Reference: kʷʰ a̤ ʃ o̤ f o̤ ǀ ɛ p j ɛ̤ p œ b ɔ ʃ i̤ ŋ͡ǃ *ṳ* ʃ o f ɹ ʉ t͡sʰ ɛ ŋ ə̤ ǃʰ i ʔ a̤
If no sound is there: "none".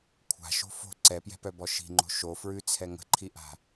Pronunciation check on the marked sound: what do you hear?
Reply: o̤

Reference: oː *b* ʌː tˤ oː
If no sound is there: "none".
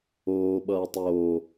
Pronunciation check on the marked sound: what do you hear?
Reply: ɓ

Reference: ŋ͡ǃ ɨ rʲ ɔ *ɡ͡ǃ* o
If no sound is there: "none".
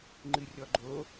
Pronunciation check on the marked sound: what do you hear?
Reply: ɡ͡ǃ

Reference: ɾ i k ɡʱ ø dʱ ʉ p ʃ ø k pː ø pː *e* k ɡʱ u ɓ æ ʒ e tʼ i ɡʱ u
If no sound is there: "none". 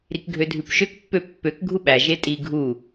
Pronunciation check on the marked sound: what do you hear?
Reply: ø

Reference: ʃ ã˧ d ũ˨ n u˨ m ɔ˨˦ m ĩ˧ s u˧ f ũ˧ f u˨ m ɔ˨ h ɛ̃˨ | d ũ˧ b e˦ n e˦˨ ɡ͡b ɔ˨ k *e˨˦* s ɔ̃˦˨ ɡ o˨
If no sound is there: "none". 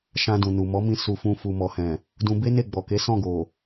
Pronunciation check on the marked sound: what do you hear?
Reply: e˨˦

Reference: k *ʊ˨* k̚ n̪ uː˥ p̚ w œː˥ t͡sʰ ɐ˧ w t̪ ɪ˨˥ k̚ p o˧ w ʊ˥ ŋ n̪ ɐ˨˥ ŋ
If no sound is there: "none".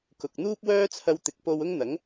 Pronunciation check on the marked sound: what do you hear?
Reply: ʊ˨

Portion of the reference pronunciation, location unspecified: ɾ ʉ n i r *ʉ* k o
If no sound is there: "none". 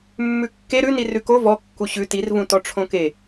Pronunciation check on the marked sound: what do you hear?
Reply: ʉ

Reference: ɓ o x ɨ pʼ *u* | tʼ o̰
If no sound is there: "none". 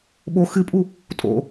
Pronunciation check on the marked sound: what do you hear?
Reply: u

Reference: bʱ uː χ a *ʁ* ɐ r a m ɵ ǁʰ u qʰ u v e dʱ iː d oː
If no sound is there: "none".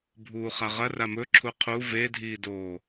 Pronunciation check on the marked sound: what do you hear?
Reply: ʁ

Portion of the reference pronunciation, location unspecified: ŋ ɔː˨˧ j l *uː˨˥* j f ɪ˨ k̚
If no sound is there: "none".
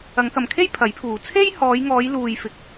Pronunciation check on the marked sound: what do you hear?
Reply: uː˨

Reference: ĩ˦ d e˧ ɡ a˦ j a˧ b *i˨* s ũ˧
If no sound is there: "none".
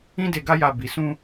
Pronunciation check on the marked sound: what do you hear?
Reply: i˨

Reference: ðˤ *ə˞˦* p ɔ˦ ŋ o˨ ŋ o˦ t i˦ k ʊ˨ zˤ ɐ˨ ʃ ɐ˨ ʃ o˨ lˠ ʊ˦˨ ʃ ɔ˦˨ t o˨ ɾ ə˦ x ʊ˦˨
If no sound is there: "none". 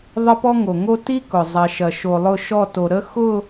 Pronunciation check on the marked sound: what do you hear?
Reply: ə˦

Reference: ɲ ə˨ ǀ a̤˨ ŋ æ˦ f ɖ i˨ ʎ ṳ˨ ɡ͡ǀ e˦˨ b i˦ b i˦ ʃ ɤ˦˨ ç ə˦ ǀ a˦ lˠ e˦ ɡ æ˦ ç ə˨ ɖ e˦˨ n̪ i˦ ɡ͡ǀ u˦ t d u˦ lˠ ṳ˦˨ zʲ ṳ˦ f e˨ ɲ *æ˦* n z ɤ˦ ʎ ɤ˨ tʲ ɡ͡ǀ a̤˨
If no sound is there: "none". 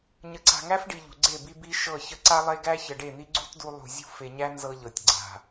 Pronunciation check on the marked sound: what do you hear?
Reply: æ˦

